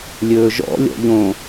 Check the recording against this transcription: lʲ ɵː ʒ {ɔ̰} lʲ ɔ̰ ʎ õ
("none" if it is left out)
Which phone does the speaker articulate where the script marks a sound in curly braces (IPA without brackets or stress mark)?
ɔ̰